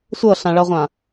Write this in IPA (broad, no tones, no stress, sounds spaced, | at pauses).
sʷ ɤ ɬ ã ɭ ʌ ʁʷ ã